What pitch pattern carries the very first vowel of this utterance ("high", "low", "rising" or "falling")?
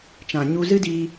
low